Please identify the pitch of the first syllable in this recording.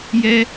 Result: high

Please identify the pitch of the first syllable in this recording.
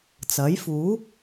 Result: rising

